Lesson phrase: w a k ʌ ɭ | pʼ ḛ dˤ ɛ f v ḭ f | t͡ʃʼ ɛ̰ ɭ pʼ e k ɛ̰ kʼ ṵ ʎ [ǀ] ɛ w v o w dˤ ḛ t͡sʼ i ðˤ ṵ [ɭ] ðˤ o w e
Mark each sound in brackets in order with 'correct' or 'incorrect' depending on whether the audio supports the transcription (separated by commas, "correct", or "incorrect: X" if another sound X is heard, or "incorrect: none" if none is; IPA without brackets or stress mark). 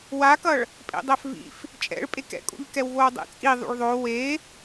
incorrect: k, correct